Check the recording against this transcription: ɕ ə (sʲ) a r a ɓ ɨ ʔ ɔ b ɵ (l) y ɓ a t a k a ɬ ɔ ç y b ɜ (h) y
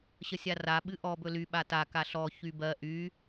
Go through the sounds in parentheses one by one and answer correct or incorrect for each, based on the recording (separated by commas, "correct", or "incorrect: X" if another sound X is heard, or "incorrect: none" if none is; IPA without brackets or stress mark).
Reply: correct, correct, incorrect: ʔ